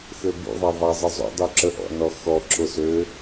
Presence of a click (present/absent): present